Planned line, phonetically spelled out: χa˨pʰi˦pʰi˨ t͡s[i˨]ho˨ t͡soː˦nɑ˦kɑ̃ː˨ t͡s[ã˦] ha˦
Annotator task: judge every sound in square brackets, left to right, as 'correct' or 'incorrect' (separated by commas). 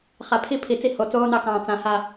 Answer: incorrect, correct